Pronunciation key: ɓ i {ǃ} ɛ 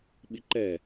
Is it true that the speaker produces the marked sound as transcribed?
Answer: yes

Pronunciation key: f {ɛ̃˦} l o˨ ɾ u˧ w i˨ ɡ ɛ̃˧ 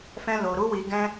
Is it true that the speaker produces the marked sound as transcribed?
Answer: no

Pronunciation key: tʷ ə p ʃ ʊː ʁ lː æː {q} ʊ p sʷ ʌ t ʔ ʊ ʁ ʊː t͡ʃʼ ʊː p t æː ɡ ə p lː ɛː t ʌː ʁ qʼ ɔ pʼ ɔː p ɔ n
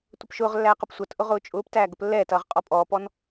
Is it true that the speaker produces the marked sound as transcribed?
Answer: yes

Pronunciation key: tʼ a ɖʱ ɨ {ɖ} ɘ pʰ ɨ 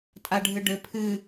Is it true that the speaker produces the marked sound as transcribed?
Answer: yes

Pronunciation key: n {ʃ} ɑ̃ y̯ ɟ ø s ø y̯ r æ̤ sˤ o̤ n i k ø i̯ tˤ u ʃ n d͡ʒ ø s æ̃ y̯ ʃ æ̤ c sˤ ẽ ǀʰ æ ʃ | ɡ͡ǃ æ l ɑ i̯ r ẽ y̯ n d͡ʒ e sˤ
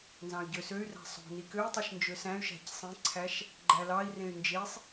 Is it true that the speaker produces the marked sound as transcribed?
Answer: no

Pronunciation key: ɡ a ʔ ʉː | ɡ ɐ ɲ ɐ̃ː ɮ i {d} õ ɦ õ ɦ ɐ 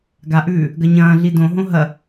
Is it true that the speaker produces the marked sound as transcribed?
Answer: yes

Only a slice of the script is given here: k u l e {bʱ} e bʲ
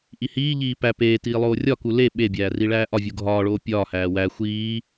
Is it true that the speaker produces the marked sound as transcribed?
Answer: no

